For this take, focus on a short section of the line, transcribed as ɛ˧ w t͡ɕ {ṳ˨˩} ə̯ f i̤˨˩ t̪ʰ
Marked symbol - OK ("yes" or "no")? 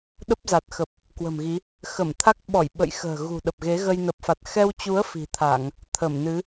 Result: no